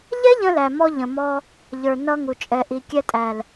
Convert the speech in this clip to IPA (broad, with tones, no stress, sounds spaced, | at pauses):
ʎ ɛ˦ ʎ ə̃˧ l æ˨ m ɔ˧ ʎ ə̃˨ m ɔ˧ | ʎ ə˞˨ n ʌ˧ ŋ u˨ t͡ʃʼ ɛ˨ ʔ i˨ kʲ ɛ˧ tʼ æ˨ l